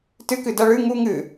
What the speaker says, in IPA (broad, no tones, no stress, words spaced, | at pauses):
tɨkɨ dɐ ɭɨ ŋu ŋɨ